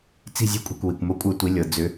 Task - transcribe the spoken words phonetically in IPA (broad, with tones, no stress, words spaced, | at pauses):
t͡si̤˦˨zʲe̤˦kʷʼi̤˨kʷ wi˨kʷmo˦kʷʼɤ˦tʷi˨˦ lʲɤ˨ d͡zʏ˨˦